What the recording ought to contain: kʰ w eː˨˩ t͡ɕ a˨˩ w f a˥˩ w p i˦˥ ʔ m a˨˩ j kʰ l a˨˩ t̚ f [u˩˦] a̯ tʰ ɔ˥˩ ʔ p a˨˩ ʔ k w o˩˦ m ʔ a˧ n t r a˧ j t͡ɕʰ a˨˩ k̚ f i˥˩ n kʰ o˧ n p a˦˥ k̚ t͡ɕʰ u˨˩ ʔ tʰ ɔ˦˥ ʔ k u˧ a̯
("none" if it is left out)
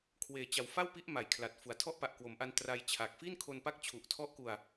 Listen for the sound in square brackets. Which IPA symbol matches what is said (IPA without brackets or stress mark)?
u˩˦